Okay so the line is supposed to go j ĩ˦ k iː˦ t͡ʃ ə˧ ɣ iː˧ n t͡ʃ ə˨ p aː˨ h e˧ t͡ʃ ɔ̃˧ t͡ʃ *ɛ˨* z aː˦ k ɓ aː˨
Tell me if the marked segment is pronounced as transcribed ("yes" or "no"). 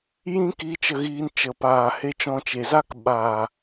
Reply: no